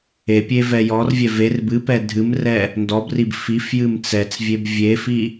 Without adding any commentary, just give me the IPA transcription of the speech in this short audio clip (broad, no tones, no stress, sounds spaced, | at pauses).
e pʲ e v ɛ j ɔ r vʲ ɛ v e r b ɨ p ɛ dʱ ɨ m r ɛ | n d ɔ b r i b f i f j ɨ m t͡s ɛ t͡s vʲ e b vʲ e f i